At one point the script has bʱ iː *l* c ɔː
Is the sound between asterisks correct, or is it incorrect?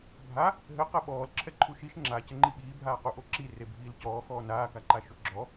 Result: correct